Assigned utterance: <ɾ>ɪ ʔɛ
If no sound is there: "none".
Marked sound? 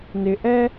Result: n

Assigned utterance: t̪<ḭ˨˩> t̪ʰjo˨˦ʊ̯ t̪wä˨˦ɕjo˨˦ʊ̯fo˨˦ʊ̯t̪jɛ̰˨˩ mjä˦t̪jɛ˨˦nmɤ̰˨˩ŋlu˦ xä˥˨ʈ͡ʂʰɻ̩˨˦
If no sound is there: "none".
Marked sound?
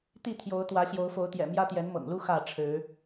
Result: i˥˨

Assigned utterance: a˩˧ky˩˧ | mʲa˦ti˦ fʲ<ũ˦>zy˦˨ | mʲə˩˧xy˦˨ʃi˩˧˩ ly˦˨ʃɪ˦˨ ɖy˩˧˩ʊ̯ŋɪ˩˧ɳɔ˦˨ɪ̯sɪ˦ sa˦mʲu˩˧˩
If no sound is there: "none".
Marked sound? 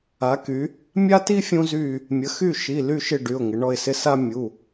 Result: ũ˦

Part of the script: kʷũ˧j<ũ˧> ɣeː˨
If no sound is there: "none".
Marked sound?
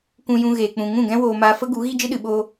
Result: ũ˧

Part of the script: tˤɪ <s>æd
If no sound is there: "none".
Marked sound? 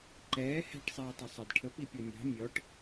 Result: sˤ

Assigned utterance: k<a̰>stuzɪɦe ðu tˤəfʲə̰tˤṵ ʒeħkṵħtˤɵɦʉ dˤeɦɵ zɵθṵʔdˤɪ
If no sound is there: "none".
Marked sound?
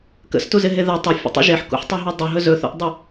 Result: ə̰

